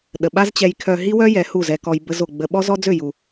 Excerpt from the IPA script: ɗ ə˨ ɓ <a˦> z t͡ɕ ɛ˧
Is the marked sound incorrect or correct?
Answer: correct